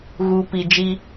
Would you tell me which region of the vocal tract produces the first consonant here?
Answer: velum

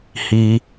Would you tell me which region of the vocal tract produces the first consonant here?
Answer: throat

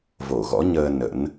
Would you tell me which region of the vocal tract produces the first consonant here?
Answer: lips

